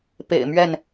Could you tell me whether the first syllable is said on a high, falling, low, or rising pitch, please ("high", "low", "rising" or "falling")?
low